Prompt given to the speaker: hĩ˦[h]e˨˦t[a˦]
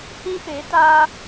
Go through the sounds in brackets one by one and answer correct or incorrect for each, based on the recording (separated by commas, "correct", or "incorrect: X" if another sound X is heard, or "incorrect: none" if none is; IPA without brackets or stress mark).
incorrect: p, incorrect: aː˦